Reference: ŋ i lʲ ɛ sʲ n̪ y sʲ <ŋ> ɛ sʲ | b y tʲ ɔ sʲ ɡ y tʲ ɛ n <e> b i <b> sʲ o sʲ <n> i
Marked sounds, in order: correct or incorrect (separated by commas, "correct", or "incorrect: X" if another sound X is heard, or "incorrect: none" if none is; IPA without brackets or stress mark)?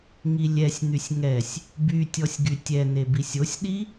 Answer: correct, correct, incorrect: none, incorrect: ɗ